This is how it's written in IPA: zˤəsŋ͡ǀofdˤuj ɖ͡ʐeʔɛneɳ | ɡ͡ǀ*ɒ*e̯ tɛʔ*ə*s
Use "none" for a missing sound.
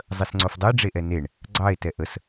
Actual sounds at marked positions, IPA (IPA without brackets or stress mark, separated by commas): ɑ, ə